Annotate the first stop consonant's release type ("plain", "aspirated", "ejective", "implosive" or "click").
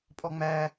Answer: ejective